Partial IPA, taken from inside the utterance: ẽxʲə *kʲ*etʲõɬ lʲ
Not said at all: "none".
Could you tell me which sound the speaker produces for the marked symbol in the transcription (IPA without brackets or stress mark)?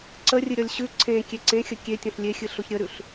kʲ